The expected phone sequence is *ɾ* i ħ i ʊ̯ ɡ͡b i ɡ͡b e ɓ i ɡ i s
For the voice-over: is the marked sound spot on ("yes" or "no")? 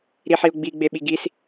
yes